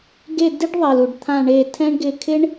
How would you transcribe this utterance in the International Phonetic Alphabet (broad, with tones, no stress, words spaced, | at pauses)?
ɡe˦˨ di˥ɖðˤe˩lu˩ɖ t̪ʰã˦˨ɳe˦˨tʰɛ̃˥ɳɡɪ˦˨ kʰɪ˥ɳ